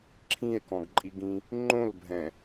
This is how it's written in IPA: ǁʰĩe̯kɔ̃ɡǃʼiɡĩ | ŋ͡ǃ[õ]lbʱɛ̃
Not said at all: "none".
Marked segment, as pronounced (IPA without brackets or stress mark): õ